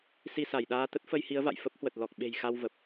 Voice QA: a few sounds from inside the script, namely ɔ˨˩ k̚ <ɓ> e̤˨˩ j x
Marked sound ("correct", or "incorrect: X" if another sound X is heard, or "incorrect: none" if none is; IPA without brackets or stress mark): correct